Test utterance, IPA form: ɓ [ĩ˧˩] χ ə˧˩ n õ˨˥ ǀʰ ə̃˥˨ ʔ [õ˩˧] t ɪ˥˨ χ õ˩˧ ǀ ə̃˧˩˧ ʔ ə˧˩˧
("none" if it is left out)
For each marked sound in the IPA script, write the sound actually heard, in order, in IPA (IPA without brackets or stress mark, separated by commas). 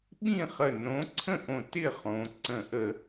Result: ĩ˥˨, õ˧˩